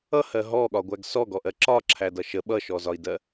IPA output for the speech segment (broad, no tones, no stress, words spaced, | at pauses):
ʌhɜ ɦɔɠɒɡʷæɡ sɔɡɔʔɜ ǁɒǁʰædʌ ʃə ɓʌʃɔzɒi̯dɜ